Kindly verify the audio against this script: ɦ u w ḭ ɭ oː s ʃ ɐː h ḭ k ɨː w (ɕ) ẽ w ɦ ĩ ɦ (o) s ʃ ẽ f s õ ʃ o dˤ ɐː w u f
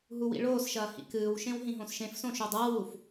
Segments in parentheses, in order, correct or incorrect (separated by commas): incorrect, incorrect